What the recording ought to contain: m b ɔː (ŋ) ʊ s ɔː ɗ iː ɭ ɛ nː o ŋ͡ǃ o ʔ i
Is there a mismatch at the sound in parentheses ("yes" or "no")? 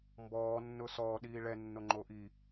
yes